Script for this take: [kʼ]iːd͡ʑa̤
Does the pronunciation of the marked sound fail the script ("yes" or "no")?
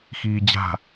yes